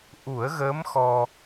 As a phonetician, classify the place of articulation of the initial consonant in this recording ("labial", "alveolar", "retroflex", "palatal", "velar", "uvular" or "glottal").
glottal